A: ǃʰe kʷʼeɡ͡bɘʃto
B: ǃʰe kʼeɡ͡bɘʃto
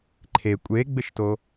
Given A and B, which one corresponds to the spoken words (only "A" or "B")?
A